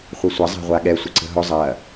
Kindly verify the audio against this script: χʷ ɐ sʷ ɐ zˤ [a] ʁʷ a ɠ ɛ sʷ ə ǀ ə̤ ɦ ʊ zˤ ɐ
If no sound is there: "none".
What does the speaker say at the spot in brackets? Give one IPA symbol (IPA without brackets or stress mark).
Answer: a̤